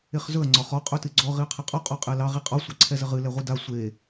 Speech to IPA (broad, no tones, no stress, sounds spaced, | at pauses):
e χ z ɵ ɐ̯ ŋ͡ǀ ɒ χ ɔ qʼ ɵ t ɨ ɡ͡ǀ ɔ ʁ i ɐ̯ qʰ ɛ qʼ ɔ qʼ ɔ qʼ ɛ l ɑ ʁ i qʼ ɒ sʷ ɑ ǀʰ ɛ z ə ʁ ɨ l ɛ ʁʷ ɨ d a sʷ e